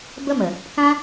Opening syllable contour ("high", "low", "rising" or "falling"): high